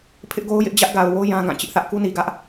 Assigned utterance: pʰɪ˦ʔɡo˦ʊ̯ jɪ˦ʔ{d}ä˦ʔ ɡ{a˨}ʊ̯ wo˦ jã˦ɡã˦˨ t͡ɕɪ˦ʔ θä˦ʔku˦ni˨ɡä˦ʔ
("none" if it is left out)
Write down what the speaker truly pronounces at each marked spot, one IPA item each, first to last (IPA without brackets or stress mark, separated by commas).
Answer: d͡ʑ, a˨